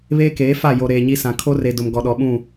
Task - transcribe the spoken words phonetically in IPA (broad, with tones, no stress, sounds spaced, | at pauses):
β eː˦ k eː˨˦ f a˦˨ j o˨ ɾ eː˨ ɲ i˦ s ã˨ kʰ o˦ r e˨ d ʊ˨ m ɡ ɔ˨ ɗ ɔ˨ ɓ ũ˦˨